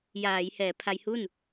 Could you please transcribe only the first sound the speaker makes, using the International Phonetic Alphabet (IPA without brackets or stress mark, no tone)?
j